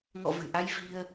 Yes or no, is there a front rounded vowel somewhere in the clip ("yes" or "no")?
no